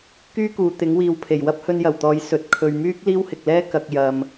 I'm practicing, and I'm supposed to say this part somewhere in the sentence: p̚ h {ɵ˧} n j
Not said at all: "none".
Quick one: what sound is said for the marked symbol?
ɵ˧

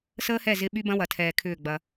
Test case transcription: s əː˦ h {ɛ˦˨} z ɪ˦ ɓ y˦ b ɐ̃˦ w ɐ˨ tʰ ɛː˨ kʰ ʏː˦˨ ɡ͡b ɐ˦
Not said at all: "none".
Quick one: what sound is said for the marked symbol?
ɛ˦˨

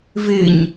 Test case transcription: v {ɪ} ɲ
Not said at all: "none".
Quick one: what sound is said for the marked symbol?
ɪ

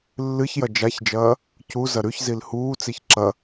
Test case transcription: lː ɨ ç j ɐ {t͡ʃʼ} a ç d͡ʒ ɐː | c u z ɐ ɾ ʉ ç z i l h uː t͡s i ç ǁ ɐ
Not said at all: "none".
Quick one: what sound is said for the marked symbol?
d͡ʒ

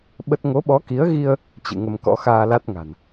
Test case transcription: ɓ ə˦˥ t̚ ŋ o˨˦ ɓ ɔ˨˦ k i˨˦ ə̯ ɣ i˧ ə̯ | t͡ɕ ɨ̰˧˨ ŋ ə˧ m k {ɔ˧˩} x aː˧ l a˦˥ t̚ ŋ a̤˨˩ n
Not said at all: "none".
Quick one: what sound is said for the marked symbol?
ɔ̰˧˥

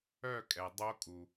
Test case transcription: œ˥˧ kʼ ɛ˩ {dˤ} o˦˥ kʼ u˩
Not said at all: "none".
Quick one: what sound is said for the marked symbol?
dˤ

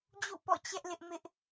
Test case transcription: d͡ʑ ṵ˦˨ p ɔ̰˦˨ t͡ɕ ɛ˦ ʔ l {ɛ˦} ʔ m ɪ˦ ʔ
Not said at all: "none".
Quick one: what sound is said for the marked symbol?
ɪ˦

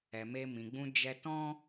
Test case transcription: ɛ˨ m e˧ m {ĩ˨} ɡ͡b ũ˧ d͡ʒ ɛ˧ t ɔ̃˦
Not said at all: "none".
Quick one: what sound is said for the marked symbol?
ĩ˨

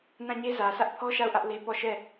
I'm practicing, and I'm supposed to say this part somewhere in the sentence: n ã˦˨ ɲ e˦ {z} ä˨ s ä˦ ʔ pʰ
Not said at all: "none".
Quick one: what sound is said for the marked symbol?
z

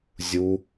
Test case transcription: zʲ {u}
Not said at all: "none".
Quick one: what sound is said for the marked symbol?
u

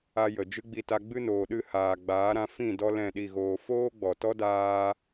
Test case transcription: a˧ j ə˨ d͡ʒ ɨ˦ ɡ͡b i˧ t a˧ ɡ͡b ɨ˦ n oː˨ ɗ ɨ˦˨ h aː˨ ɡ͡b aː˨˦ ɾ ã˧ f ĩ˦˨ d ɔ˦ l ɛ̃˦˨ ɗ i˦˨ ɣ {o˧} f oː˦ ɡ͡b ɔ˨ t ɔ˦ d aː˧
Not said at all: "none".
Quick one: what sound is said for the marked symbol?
oː˧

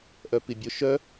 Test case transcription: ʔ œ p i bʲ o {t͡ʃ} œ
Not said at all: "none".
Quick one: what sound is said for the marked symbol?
ʃ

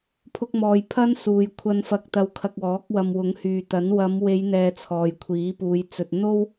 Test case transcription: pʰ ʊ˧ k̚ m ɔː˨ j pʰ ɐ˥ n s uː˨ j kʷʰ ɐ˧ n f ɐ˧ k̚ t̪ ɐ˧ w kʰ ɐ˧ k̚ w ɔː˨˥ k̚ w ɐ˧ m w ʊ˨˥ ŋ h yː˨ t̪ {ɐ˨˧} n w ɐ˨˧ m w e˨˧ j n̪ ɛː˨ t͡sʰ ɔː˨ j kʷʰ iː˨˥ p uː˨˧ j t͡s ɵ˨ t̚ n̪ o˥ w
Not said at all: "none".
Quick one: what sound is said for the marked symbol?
ɐ˨˥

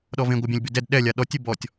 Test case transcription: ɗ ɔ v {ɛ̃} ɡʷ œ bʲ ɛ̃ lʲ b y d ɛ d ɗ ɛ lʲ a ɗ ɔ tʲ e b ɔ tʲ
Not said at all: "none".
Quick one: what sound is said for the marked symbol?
ẽ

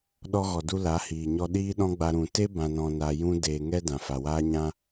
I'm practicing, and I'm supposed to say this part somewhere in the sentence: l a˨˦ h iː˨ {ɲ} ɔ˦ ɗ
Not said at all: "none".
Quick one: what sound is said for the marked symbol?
ɲ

